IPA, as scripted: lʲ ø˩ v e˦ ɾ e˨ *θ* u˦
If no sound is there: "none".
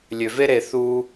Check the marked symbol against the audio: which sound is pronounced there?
θ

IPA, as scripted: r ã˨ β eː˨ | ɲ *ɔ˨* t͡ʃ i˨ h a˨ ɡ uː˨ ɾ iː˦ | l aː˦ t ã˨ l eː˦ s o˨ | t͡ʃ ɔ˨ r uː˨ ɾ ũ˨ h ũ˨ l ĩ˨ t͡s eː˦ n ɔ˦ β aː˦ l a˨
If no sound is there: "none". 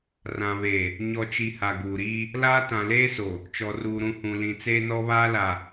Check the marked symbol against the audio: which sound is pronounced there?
ɔ˨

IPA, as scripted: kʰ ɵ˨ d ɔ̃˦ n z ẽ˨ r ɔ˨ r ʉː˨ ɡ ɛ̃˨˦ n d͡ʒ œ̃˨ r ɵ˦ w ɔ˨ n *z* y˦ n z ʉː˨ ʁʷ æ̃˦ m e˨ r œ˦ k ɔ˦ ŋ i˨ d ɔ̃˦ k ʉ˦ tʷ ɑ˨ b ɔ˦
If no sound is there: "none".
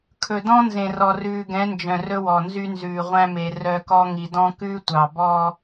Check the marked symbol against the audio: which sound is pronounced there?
z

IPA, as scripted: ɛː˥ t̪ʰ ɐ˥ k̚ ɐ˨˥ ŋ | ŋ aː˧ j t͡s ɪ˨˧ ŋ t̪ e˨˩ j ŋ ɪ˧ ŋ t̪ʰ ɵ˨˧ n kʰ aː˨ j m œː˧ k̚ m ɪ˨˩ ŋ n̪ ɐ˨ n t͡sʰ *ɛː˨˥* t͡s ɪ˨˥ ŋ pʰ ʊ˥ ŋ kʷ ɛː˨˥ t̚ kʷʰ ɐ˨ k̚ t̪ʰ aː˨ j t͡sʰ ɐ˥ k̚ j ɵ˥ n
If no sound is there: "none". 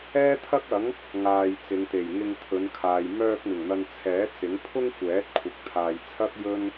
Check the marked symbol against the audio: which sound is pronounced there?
ɛː˨˥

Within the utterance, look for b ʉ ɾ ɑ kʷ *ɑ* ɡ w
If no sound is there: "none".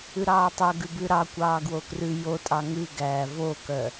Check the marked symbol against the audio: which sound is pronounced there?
ɑː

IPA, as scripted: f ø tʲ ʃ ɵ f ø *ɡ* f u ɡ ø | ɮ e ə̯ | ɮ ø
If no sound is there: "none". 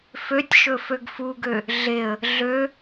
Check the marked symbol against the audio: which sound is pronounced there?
ɡ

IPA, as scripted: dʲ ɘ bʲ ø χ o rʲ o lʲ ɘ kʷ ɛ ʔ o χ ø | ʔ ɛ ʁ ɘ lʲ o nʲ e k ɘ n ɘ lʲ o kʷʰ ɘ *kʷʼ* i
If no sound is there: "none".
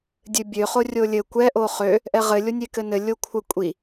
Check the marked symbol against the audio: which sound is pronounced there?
kʷʼ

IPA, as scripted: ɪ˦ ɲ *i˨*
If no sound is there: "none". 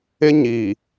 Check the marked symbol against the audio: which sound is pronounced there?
i˨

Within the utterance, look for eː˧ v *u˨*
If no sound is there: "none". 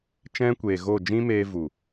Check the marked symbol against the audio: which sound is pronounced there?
u˨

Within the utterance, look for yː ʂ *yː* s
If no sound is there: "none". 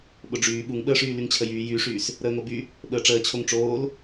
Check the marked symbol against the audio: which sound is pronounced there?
yː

